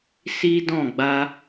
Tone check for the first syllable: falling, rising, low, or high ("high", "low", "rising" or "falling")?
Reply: high